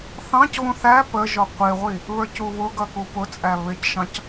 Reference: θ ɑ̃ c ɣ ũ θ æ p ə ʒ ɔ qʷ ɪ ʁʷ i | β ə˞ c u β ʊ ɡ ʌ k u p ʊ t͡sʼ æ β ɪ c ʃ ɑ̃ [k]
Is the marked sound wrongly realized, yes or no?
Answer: yes